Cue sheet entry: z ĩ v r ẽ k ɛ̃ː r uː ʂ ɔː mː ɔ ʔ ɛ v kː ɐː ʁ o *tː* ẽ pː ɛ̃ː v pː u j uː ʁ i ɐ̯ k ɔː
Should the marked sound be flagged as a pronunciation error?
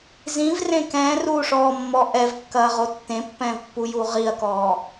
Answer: no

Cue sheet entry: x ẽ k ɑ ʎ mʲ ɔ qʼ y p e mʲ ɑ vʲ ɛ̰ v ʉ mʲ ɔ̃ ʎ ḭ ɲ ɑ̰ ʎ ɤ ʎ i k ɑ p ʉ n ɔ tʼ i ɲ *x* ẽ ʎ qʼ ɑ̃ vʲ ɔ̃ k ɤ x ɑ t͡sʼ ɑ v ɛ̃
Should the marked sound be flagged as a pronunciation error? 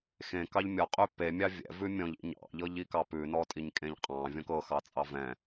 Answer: yes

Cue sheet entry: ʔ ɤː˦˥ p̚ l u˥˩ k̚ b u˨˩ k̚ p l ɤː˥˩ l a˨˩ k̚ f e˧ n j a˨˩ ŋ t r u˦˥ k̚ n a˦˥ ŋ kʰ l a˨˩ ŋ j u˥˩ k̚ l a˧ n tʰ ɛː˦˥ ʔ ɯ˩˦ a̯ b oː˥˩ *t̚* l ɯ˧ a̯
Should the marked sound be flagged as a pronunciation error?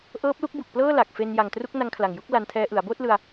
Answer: no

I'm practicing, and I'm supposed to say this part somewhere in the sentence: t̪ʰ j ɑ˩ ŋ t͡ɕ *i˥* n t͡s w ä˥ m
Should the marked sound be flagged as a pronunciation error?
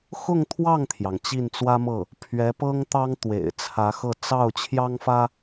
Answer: yes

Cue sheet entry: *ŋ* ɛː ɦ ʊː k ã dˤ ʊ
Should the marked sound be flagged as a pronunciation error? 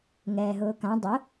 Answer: no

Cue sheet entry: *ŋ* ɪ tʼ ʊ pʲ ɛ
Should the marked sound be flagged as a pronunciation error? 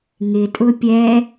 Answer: no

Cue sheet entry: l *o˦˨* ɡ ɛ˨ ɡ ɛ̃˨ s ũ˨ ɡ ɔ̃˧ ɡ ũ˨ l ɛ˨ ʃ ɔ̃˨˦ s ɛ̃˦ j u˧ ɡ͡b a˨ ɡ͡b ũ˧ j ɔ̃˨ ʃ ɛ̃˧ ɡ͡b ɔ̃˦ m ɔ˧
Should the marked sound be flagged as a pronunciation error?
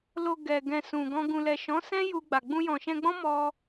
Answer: yes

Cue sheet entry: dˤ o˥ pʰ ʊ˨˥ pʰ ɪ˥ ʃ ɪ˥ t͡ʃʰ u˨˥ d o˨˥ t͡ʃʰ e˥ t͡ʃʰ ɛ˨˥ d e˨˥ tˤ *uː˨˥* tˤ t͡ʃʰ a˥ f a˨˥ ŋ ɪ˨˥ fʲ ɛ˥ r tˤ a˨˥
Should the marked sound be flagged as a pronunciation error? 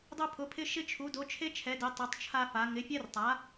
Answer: yes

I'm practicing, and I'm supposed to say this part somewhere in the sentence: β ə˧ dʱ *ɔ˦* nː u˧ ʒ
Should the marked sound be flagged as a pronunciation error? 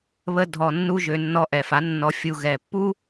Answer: yes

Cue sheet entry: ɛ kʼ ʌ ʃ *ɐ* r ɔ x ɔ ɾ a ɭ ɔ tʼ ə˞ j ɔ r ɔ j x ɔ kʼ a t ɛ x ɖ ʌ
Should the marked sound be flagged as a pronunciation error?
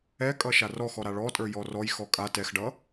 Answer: yes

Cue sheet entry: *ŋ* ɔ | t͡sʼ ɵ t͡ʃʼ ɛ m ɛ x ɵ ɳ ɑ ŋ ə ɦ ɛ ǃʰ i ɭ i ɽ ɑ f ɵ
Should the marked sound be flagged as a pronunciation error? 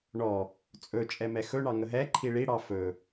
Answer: yes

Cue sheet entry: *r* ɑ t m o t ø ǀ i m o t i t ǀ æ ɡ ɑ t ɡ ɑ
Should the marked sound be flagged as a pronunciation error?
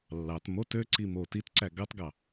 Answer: yes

